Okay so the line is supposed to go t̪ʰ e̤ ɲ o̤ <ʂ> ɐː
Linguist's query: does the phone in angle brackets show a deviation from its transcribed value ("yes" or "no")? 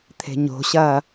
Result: yes